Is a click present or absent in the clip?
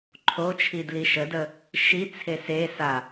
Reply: present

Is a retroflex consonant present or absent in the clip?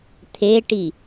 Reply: present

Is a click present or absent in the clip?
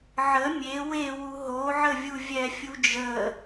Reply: absent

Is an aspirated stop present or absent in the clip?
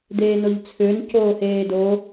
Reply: present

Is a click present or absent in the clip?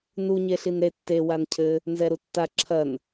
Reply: present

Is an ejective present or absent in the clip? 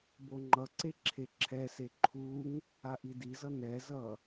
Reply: absent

